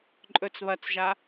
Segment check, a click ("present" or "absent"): present